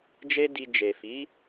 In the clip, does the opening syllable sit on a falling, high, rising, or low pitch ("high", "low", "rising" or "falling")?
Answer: high